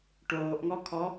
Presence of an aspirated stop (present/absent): present